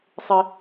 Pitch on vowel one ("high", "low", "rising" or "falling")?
high